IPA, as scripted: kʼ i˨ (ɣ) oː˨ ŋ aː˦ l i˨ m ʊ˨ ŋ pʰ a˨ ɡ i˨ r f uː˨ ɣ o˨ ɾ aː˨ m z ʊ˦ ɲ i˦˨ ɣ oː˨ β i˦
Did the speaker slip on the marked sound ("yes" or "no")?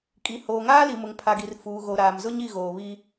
yes